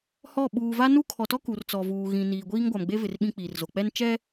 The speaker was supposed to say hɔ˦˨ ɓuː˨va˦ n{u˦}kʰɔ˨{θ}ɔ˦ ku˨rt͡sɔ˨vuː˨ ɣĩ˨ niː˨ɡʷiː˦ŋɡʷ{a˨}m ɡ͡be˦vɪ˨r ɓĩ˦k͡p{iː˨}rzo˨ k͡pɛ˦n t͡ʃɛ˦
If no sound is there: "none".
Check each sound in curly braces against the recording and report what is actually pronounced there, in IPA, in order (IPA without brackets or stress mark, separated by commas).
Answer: u˦, t, a˨, iː˨